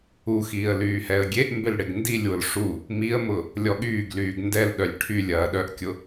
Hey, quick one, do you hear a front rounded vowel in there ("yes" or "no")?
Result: yes